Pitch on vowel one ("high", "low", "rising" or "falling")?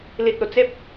low